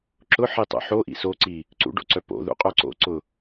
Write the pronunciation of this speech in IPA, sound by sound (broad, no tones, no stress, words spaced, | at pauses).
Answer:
ǁʊħitˤo̰ ħoʔḭ soǀi | ǀṵɖo̰ǀœ po̰ðṵqʼœ ǀo̰ǀʊ